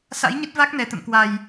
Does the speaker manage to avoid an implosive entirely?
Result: yes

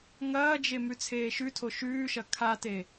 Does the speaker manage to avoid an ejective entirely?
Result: yes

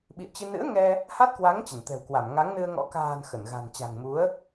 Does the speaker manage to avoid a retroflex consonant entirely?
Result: yes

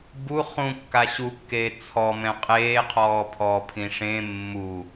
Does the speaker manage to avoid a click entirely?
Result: yes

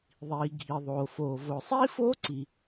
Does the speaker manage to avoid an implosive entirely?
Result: yes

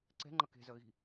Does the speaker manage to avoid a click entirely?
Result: no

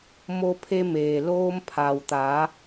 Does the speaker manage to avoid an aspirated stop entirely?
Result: no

